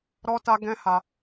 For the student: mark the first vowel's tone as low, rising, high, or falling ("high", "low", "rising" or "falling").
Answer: high